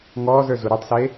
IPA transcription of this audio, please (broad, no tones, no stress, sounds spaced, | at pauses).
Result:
ŋ ɔː z ə˞ z u ɾ ɨ tˤ s e